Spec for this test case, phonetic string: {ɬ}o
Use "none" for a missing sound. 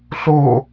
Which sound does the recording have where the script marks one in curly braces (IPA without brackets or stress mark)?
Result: ɬ